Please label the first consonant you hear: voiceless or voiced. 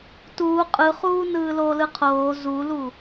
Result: voiceless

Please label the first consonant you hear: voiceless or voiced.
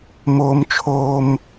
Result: voiced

